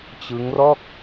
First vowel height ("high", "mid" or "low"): high